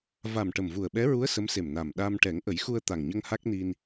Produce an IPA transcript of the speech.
v a˨˩ m ʈ ə˨˩ m v u˨˩ ə̯ ɓ ɛ˧˥ ɹ u˧˥ ə̯ s ə˧˥ m s e˨˩ m n a˨˩ m ɗ a˧ m ʈ ɛ˨˩˦ ŋ ʔ ə˨˩˦ j x u˧ ə̯ t̪ a˨˩ ŋ ɲ ə˧ ŋ h a˦˥ k̚ n i˧ n

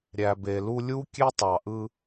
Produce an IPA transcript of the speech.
ɾʲ æ˨ b e˨ l u˧ lʲ u˦ kʲ e˦ tˤ ɑ˨ ʔ ɯ˧

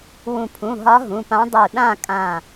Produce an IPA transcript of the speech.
w ũ˧˩ pʰ ũ˩˧˩ ɦ ɒ˧˥ ɦ ũ˩˧˩ p ã˧˥ dˤ u˧˩ ɗ ã˥˧ kʼ ã˧˩

